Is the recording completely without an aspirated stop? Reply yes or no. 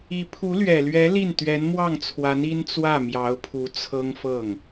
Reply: no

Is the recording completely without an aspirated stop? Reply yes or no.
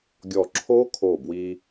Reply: no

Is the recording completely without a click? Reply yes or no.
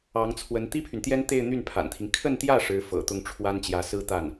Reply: yes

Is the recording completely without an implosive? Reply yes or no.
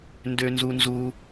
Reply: yes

